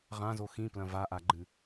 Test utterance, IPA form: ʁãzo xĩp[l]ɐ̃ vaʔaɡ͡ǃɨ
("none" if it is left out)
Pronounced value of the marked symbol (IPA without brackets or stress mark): l